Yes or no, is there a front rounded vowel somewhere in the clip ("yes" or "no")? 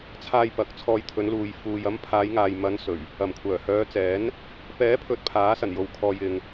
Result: yes